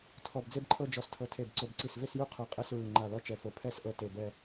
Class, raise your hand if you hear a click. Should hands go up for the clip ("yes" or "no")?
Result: yes